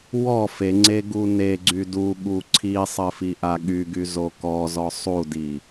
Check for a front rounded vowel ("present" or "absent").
present